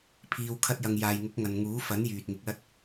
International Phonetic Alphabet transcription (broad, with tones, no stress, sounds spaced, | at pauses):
pʰ iː˨ w kʰ ɐ˧ t̚ j ɐ˨ ŋ j aː˨ j ŋ ʊ˨˥ k̚ ŋ ɐ˨ n ŋ uː˨˥ f ɐ˨˥ n j yː˨ t̚ ŋ ɪ˨˥ k̚ l ɐ˥ t̚